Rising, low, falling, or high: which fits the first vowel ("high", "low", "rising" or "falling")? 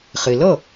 low